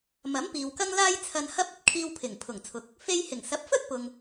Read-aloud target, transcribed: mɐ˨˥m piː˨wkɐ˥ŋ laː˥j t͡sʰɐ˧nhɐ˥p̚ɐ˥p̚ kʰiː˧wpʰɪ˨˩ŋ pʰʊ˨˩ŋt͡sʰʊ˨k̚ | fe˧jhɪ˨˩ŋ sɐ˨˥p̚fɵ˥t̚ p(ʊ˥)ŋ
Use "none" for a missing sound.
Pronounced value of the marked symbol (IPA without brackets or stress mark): ʊ˨